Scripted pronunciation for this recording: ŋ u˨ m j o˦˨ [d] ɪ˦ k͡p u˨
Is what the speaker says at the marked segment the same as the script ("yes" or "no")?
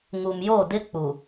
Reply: yes